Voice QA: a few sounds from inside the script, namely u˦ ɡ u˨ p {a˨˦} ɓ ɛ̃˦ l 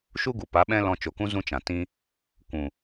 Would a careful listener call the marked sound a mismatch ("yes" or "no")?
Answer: no